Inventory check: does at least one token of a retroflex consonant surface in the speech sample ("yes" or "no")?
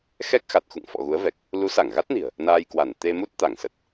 no